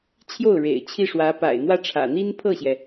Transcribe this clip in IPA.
t͡ɕʰjo˥˩ʊ̯ɻḛ˨˩ɪ̯ t͡ɕʰi˥˩ʂwä˧˥ pa̰˨˩ɪ̯n̪wä˥˩ʈ͡ʂʰä̰˨˩ n̪i˥npʰɤ˥˩ɕjɛ˩

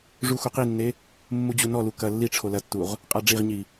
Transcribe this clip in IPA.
ʐuxuqinːe | mːud͡ʑunɔlu kɐ lːi ʈ͡ʂʰolɐtːuʁ | qʼaɖ͡ʐiʁɲi

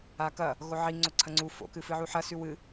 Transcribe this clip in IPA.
akɐ | ɣoʕi ŋ͡ǀoǀʰɐŋ͡ǀu fo̰kɨ fɨʕuħɐsʉ wɨ

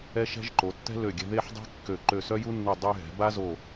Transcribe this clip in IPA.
ɛ˥ʃɛ̤˥ʒ ǃo˩˧tːɛ̤˥lø˧˩ ɡʲɛ̤˧ðe˥˧ħdˤe̤˥ kːø˧˩ ǃø˧˩sœ˥ju˥nːu˧˩ dˤy˧ɦɛ̤˩˧ba˥zo˧˩

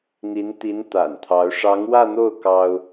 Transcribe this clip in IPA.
n̪i˧˥nt̪i˧˥n t̪a̰˨˩nt̪ʰɑ˧˥ʊ̯ ʂɑ˧˥ŋwä˥˧n̪o˥˩ʊ̯ kɑ˥ʊ̯

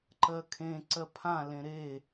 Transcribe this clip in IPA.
ǃɜkʰẽǀɜ pʰãlẽ ɾe

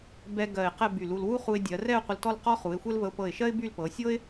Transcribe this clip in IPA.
bɛ˧ ɡɜ˧˩ɪ̯qɛ˥˧ by˧˩lu˧l wu˥χu˧ɪ̯dʲɜ˩˧ rɛ˥˧ʊ̯qʷə˧l tɔ˥˧lqɔ˥χu˩˧ɪ̯xʷɛ˥l və˧ʊ̯pɤ˧˩ɪ̯ʃɜ˥ɪ̯ by˥˧lpɤ˩˧ sʲɤ˥ɪ̯

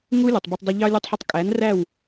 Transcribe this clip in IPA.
ŋu˦ lʲʊ˨tˤbʌ˧tˤ dˤɪ˧ʎɑ˦ lʲu˧tˤħʌ˧tˤ kʼæ˨˦nræ˦˨w

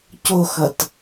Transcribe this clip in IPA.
coxʌt

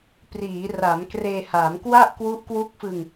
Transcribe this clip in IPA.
priː˩˦ra˩˦mkreː˧ha˩˦m kwa˥˩ʔkwu˦˥ʔ kwu˦˥k̚fɯ˧ŋ

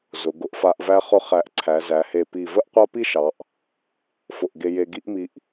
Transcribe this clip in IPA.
zʊ˩˧ ɡʊ˧ʔfa˧ʔ væ˧χʊ˧ χæ˧˩ʔǀʰæ˩˧zæ˩˧he˧˩ pi˧˩ və˥ʔqʷa˥pi˥ʃɑ˩˧ʔ | fʊ˧˩ʔɡe˧ je˧ɡi˥ʔmi˧ʔ

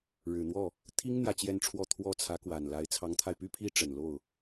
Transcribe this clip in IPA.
ɻɻ̩˨˩n̪wɔ˥˩ | t̪ʰi˥ŋ n̪jä˥˧t͡ɕjɛ˥˧nʈ͡ʂʰwɔ˥˧ t̪ʰwɔ˥˩ t͡sʰä˧˥kwa˨˩nla˧˥ɪ̯ t͡sʰɑ˧˥ŋt̪ʰa˧ɪ̯py˥pʰi˥ ʈ͡ʂə˨˩n lo˥˩ʊ̯

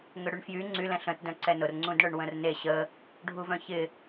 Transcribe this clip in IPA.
ŋʏɽyɳfjy ŋ͡ǀy lɛ̃ɬə̃t dœ̃ǀɛnʊr ŋ͡ǀũdɳœɳwə̃rne ɕə | ɖʱuvœ̃çɪ

